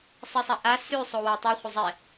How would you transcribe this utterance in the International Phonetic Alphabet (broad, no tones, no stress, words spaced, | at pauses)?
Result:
sˤisˤaʔa sʉ sˤowatˤu χʷəzˤɛ